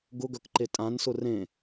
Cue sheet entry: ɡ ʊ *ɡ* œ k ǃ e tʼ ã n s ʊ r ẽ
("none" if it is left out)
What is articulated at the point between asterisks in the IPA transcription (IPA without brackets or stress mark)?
ɡ